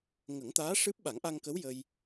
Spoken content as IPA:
ŋə˨˩˦ŋt̪aː˧˥ ʂɨ˦˥p̚ ɓa˨˩˦ŋʔa˧ŋkə˧˥w jə˧j

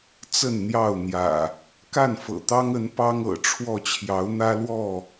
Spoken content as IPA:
t͡sə˥˨nn̪jɑ˥˨ʊ̯ n̪jä̰˨˩ | ka˥˨nfɤ̰˨˩t̪ɑ˦ŋə˨˦n pɑ˦ŋ ɤ̰˨˩ʈ͡ʂʰwɔ˥˨ t͡ɕʰjɑ˨˦ʊ̯n̪ä˦lwɔ˥˨

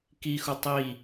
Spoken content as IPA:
kixu tˤi

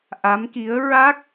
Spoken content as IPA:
ʔa˧˥mki˧˥ə̯ ɹa˦˥k̚

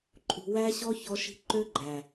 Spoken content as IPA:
ǃʼṳ˨wæ˧ɕɔ˧ çɔ˧ʃi̤˧ǃø˦ɡ͡ǃæ˨

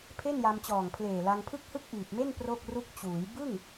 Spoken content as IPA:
pʰe˥˩nja˧mt͡ɕɔː˨˩ŋpʰleː˨˩ la˧ŋpʰɯ˥˩k̚hɯ˥˩k̚ ʔiː˨˩p̚me˥˩n pro˥˩k̚ru˥˩k̚ t͡ɕuː˩˦j bɯ˥˩ŋ

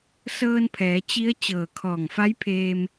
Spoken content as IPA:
sɤː˧npʰɛː˩˧ t͡ɕi˧˥ə̯ t͡ɕɤː˧˩kʰɔː˧˩ŋfa˧˥jpʰeː˧m

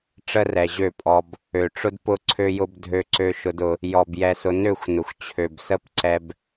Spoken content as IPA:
ʈ͡ʂə˦rɛ˨ʑø˦˨pʼɔ˧b | ø˨ʈ͡ʂʊ˦dpʊ˦ ǀʰø˧jʊ˧b dʱø˧ǀø˧ ʃʊ˧dʊ˧ | jɔ˨b jɛ˧sʊ˧ nø˦˨xʷ nʊ˨xʷ t͡ɕʰø˨bsə˦pǀɛ˧b

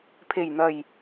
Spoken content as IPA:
pʰe˨˩jn̪ɐ˨˩j

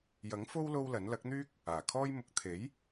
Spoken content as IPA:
jɐ˨˥ŋfo˥w lo˥wlɐ˨˥n lɐ˨˥k̚n̪yː˥k̚ | aː˨˩kʰɔː˥j mʊ˨k̚t̪ʰe˨˥j

